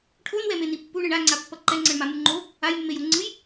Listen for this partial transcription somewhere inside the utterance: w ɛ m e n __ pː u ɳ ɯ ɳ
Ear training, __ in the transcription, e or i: i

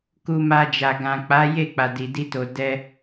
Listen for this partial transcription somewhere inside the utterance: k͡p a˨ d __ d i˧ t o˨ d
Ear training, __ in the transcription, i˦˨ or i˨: i˨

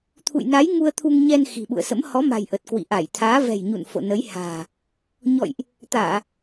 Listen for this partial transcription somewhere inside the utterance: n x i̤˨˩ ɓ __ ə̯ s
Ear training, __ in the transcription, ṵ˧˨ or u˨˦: ṵ˧˨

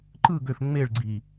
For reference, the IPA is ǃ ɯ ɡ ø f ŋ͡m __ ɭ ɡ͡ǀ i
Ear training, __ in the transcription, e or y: e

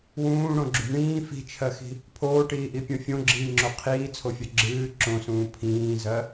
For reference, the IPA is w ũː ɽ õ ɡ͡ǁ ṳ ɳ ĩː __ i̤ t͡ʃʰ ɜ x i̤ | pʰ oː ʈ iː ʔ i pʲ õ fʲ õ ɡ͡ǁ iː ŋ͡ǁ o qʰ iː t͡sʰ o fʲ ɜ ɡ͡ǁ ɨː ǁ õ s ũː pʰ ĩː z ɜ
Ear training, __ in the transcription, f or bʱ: f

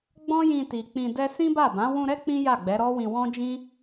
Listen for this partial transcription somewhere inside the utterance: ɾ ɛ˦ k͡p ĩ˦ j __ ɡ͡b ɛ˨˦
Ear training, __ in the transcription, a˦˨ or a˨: a˦˨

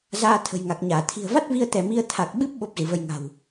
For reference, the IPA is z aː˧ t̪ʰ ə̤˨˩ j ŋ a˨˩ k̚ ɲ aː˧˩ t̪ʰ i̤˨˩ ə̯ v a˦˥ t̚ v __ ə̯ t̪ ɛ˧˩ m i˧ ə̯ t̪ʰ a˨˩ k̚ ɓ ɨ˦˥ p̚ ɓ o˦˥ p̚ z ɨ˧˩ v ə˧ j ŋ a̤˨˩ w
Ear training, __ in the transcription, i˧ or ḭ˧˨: i˧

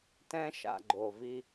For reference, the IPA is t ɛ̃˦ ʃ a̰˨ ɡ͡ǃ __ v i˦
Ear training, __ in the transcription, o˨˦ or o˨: o˨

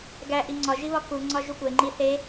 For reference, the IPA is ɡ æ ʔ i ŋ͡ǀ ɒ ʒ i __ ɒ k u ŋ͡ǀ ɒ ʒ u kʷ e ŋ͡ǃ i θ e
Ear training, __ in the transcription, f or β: β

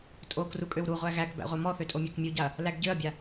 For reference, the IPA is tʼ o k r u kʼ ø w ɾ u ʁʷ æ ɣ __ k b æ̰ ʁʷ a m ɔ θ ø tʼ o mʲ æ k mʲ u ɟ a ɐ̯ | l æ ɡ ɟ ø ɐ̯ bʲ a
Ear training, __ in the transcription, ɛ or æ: æ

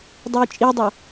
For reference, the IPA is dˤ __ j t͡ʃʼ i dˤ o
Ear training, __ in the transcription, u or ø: u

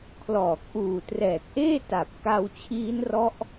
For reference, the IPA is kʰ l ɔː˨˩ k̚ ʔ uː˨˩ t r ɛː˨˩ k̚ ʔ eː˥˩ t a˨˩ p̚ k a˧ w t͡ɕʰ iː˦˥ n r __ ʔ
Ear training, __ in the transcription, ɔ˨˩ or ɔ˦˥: ɔ˦˥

